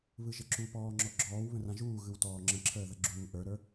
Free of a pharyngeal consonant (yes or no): yes